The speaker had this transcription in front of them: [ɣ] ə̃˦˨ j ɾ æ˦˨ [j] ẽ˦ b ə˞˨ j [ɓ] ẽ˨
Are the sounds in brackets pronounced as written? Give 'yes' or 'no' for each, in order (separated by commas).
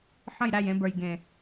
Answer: no, yes, no